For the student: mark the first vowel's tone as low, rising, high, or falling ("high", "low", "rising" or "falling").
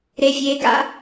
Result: high